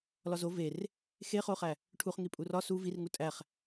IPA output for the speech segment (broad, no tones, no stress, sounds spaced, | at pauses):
l ɒ z o v e r | x e χ o χ æ | ʈʰ u χ ŋ i pʼ u r ɒ s u v i r ŋ u tʼ æ χ